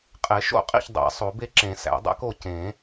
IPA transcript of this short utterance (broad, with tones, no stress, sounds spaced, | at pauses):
qʼ e˨˩˦ ʃ o̰˥˩ qʼ ḭ˥˩ ç dˤ æ̰˨˩˦ sˤ o˨˩˦ b e˦ ǁ ẽ˨˩˦ s æ̰˨˩˦ dˤ æ̰˦ k o˥˩ c ẽ˨˩˦